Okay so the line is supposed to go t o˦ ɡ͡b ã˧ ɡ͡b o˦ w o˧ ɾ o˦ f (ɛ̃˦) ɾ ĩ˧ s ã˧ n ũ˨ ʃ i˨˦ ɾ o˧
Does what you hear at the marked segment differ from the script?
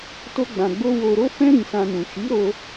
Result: no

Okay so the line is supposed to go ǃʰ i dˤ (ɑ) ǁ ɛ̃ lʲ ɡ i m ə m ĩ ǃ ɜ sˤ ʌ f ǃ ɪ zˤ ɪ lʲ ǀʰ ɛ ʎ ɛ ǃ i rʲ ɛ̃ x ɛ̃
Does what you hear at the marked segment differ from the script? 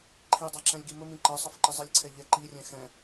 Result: no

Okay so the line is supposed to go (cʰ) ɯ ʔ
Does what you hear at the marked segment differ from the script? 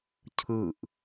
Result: no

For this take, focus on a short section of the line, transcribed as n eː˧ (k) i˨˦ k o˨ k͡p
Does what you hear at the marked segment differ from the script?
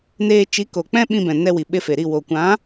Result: yes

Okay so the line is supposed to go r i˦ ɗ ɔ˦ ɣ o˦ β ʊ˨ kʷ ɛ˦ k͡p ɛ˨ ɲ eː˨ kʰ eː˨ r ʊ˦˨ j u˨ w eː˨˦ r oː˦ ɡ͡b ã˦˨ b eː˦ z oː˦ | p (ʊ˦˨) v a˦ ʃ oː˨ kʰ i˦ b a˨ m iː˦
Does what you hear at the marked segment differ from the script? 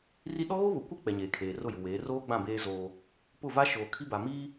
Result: no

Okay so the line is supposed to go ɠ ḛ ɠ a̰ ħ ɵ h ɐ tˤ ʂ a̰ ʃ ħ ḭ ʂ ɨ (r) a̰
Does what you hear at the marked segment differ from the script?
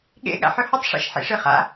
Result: yes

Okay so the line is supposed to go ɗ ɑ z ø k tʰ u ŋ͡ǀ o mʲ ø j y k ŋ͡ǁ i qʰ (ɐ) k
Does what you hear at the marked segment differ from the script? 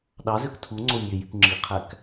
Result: yes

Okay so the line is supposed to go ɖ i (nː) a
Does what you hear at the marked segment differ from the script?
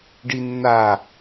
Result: no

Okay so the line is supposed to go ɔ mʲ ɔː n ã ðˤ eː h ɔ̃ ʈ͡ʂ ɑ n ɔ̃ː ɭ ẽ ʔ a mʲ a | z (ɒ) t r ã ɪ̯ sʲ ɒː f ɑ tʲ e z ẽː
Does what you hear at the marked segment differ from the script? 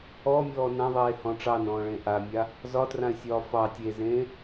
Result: no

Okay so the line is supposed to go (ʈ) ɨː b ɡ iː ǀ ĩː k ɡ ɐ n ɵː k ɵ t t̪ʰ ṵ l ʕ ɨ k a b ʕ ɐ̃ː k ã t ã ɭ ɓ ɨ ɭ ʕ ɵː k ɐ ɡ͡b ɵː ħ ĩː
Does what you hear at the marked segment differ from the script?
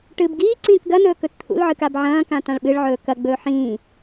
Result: no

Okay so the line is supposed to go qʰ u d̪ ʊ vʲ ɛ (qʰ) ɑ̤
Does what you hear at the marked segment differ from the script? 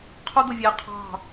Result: no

